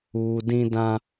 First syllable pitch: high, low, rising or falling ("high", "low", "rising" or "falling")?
low